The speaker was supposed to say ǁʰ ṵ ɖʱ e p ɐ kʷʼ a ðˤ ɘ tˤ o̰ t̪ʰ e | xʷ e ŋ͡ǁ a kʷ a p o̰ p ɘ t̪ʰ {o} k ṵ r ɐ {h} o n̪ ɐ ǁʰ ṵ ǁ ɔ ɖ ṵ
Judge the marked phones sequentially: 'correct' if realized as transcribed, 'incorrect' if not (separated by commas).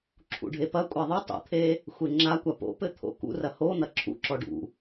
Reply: incorrect, correct